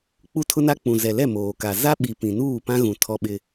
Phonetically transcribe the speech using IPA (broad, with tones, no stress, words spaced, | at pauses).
k͡pu˦tʰʊ˦na˦ k͡pũ˨ zɛ˨lɛ˦˨ moː˨ka˨ za˦ɓi˨ pĩ˨nuː˦˨pã˦ɣũ˨ tʰɔ˦ɓɪ˦